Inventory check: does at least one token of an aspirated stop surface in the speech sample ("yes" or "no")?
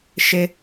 no